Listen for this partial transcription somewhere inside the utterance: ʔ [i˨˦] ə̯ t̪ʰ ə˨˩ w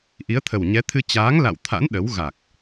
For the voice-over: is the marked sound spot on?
yes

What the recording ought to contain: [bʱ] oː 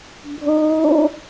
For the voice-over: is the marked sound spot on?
yes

